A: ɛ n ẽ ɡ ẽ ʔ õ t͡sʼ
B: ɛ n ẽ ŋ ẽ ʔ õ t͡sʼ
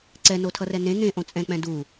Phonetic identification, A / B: B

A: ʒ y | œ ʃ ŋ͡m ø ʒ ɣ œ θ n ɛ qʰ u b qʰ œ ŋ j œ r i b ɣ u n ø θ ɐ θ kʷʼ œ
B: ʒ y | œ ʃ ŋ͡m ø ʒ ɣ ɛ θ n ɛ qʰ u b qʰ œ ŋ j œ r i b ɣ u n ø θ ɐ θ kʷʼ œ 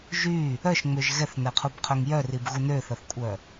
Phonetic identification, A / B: B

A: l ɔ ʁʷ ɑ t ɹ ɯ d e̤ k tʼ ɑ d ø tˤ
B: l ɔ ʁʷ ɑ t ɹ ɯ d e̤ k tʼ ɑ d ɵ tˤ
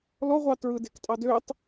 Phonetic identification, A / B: A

